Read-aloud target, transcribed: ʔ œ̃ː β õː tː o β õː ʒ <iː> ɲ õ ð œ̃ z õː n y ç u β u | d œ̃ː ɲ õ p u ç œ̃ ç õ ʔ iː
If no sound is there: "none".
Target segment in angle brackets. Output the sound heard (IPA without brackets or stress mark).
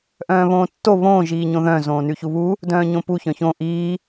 iː